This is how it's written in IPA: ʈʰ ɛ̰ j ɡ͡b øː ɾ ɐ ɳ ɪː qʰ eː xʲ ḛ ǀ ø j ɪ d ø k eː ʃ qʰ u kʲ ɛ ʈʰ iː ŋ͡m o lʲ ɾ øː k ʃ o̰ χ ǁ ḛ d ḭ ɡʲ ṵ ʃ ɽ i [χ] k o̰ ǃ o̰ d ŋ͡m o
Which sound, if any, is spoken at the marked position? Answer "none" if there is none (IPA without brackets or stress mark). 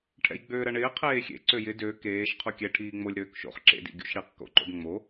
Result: q